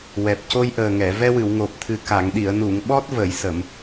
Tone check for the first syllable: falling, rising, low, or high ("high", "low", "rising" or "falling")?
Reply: low